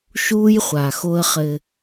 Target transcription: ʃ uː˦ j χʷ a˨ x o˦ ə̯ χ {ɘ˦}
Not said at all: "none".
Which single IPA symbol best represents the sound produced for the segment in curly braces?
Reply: ɘ˦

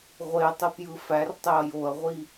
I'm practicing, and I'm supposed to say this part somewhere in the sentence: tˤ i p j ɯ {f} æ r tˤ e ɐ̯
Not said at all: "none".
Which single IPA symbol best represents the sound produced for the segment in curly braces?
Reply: f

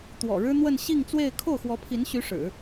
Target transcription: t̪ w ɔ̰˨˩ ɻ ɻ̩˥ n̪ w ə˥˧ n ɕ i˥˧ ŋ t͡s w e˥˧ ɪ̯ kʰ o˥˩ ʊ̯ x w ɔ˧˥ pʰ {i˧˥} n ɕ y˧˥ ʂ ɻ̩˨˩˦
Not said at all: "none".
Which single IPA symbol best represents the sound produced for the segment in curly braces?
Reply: i˧˥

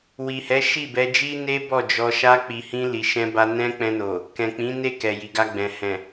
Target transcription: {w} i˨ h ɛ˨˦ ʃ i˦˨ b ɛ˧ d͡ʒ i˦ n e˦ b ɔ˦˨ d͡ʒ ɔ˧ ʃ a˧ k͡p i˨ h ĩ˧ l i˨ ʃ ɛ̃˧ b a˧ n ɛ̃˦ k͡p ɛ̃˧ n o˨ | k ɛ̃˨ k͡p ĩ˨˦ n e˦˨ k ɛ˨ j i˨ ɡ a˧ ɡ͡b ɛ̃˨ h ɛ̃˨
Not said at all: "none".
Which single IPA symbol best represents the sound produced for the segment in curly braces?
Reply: w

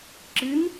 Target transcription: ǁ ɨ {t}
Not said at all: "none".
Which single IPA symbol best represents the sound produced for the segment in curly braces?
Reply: n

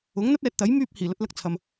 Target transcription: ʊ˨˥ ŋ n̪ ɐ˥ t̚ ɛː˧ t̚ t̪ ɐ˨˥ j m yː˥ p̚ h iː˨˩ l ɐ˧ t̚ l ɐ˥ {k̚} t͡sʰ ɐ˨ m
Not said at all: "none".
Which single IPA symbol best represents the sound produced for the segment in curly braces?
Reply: k̚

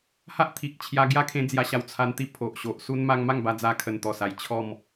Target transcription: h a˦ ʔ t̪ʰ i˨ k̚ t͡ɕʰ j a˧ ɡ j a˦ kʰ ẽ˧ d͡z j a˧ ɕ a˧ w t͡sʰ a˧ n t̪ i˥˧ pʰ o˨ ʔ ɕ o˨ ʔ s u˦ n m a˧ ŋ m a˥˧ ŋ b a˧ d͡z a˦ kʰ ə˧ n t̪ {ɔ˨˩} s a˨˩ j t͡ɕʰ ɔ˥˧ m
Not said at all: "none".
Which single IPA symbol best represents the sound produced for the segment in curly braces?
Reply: ɔ˨˩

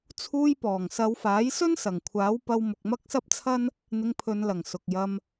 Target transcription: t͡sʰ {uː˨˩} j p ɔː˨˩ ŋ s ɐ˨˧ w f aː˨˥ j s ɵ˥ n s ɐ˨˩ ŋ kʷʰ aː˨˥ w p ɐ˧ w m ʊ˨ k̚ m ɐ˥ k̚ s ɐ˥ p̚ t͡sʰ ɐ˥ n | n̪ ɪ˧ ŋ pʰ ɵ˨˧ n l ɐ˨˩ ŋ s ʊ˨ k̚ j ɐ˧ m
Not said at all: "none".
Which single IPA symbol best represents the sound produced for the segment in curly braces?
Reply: uː˧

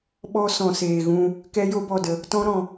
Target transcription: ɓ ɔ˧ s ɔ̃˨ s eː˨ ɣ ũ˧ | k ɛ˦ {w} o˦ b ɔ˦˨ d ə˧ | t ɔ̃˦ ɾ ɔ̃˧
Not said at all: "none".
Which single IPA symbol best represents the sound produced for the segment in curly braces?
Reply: j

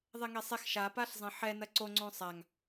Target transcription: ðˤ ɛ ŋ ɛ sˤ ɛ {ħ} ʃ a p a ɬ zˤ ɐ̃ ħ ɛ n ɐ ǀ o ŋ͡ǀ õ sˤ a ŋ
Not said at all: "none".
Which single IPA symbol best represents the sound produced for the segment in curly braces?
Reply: x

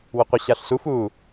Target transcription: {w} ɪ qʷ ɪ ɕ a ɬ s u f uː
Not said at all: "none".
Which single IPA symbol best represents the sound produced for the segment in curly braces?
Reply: w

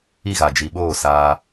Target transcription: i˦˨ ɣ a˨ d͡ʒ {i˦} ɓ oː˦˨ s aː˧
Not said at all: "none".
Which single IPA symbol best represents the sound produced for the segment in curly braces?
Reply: i˨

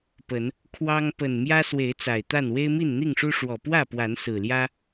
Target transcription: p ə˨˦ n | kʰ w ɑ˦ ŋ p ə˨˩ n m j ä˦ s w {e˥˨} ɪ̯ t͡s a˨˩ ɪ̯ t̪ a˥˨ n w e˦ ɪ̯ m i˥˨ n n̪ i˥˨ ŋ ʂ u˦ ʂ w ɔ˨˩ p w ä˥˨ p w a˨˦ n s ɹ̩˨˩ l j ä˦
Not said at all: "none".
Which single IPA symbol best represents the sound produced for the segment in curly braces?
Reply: e˨˦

